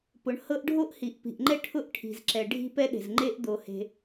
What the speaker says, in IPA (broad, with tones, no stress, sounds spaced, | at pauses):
p ʊ˩ ɳ h ɤ˥ ʔ ɖʱ o˥ ʔ h i˩ ʔ p i̤˩ ʔ ŋ͡ǃ ɛ˥ ʈʰ ʊ˥ ʔ ʈʰ i̤˩ z ǁ ɛ˩ ɖʱ i̤˥ p ɛ˥ ɗ e̤˩ z ŋ͡ǃ e˥ ʔ d̪ o˩ h e̤˩